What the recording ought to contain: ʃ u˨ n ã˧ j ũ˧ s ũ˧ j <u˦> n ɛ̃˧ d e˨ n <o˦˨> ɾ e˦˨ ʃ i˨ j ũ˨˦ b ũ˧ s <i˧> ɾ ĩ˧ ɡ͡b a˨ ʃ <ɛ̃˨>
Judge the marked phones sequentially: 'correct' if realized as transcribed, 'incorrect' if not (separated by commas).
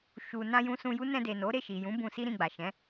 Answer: correct, incorrect, incorrect, incorrect